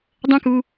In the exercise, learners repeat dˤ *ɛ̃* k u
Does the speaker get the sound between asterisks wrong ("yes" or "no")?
no